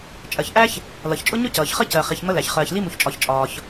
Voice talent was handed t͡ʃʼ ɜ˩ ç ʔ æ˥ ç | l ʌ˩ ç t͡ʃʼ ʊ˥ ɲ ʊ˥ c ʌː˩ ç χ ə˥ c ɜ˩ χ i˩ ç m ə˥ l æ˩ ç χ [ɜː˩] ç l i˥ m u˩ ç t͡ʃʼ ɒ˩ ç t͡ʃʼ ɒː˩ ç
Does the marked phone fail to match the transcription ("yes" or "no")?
no